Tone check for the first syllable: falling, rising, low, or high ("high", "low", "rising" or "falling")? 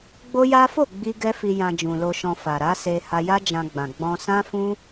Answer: high